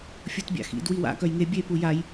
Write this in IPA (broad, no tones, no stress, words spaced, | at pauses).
fʲutbʲa̰xḭd wiwa̰ kœjŋe bʲe pujaj